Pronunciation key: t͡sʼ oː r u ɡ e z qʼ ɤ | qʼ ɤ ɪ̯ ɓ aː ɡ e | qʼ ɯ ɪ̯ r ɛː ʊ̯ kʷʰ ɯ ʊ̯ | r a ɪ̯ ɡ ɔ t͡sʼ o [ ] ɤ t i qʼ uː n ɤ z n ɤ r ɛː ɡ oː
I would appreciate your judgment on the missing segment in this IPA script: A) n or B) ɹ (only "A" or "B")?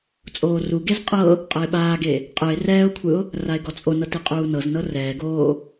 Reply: A